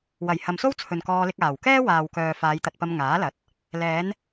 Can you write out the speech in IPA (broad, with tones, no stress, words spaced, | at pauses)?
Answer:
wɐ˨˩j hɐ˨mso˥w t͡sʰɵ˨nkɔː˧lɪ˧k̚ aː˨˩wkɛː˥ waː˨wkœː˨ faː˨˧jt̪ɐ˧t̚pɐ˧m ŋaː˨˥lɐ˨˥t̚ | lɛː˨˧n